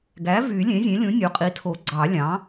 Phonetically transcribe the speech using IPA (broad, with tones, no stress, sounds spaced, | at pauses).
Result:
ɡ æ˩˥ v y˨˩˦ lʲ ẽ˩˥ zʲ ẽ˩˥ lʲ ũ˩˥ nʲ o˩˥ qʼ i˩˥ tʰ o˨˩˦ ɡ͡ǀ ɑ˨˩˦ lʲ ɑ̃˩˥